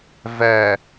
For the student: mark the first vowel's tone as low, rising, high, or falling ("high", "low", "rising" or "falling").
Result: low